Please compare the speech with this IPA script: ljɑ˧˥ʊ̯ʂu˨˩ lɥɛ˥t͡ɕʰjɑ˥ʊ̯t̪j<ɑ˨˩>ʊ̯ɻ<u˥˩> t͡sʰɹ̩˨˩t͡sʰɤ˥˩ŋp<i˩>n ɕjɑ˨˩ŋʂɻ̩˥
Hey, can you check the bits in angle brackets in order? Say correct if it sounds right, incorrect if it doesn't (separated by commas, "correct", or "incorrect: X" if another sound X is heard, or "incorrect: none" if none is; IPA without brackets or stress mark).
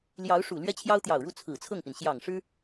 correct, correct, correct